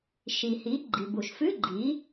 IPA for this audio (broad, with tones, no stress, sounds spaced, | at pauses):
ʃ i˩ h i˩˥ ɡ͡ǃ i˩ b u˩ ʃ f ʉ˧˥˧ ɡ͡ǃ i˩˥